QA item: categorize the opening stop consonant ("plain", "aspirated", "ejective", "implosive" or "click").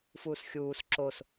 click